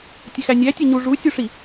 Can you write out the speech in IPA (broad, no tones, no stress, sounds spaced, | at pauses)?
tʲ e x æ nʲ æ tʲ e ɲ u ʐ u sʲ u ʂ i